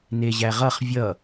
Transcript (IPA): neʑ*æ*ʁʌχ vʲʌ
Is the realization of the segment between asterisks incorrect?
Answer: no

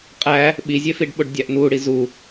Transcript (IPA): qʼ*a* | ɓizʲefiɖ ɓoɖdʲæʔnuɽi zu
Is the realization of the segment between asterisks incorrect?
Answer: yes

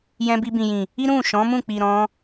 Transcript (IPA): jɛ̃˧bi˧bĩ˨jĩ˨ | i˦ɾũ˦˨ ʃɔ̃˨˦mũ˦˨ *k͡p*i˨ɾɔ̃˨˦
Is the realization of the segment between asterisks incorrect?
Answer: no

